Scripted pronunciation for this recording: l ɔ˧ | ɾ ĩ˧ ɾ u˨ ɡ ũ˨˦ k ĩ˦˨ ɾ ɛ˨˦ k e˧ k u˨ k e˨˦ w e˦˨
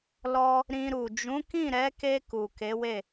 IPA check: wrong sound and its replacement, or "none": ɡ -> d͡ʒ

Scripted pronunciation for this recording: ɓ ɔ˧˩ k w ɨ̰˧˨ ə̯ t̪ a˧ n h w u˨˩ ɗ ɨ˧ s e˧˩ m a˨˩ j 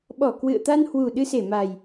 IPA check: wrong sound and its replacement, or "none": none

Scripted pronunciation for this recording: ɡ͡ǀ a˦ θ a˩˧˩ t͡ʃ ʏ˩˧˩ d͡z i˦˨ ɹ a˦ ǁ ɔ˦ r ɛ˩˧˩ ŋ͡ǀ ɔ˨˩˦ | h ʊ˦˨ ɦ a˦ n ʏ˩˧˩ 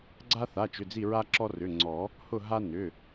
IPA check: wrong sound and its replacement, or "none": ɛ˩˧˩ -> ʏ˩˧˩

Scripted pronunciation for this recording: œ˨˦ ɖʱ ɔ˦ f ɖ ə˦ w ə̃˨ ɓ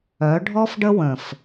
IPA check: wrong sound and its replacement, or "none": ɓ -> f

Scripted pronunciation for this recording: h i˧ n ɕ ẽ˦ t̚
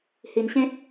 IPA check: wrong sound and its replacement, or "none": none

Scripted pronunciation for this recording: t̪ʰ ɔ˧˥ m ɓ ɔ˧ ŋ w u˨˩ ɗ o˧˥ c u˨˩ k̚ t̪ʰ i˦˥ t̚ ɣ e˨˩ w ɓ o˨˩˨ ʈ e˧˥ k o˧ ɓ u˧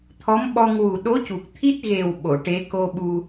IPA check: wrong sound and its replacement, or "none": none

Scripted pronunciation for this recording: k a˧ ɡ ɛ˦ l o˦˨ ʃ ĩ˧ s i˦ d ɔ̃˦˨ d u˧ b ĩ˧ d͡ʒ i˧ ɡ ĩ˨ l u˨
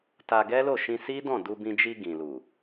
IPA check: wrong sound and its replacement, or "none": k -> t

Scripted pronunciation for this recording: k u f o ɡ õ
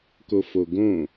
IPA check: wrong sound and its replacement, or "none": u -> o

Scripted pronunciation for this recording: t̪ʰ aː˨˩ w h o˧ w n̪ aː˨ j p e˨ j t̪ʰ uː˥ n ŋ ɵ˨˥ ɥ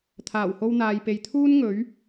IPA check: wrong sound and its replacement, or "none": none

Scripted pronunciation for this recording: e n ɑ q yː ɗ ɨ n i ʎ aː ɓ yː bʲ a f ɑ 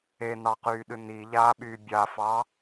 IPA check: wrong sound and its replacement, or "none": none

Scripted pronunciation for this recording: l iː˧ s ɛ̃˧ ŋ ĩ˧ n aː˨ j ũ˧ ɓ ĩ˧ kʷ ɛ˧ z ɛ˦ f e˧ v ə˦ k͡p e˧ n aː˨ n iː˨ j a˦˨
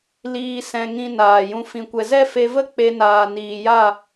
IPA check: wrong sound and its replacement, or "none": ɓ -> f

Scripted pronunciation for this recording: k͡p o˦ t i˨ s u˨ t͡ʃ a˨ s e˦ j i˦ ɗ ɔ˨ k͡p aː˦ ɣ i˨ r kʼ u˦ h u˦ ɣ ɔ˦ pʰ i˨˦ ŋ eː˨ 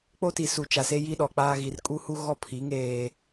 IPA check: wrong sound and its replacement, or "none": none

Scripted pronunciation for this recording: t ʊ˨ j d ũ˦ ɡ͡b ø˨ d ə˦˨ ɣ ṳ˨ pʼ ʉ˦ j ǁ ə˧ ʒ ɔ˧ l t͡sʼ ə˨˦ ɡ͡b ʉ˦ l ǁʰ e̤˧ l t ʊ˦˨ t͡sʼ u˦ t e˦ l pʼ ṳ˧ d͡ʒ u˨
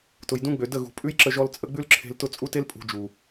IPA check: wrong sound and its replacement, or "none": none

